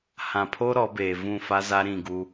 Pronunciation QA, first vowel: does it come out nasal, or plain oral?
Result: nasal